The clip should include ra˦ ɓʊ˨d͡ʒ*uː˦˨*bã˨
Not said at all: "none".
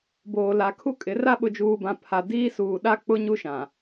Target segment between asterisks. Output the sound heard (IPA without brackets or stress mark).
uː˨